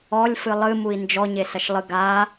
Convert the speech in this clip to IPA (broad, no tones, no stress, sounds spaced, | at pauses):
ɔ lʲ f ɨ lˠ ɨ m u i̯ n d͡ʒ ɔ ɲ e s ɐ ʃ lˠ ɨ ɡ a